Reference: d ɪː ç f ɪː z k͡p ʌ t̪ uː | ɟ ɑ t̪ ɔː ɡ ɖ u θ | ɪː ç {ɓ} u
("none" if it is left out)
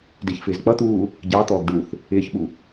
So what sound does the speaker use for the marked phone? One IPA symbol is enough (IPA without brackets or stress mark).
ɓ